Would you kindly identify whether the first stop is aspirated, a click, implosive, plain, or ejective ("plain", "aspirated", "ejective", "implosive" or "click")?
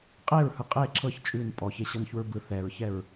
ejective